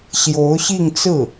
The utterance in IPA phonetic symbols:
ɕ j o˧˥ ʊ̯ ɕ i˥˧ ŋ t͡s ɹ̩˥˩

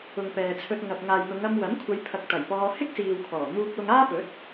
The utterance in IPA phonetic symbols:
ʊ˨ ŋ p ɛː˨ t͡sʰ ɵ˧ t̚ ŋ ɐ˨ p̚ ŋ aː˨ j n̪ ʊ˨˧ ŋ ɐ˧ m w ɐ˨˥ m kʷʰ ɐ˨˧ j pʰ ɐ˨ k̚ t̪ ɐ˨˩ j p ɔː˧ h ɪ˥ k̚ s iː˨ w kʰ ɔː˨˩ n̪ uː˥ k̚ w ʊ˥ ŋ aː˥ p ɵ˨˥ t̚

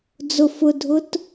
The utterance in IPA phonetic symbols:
d͡z ʊ f ʊ dʱ ʊ t

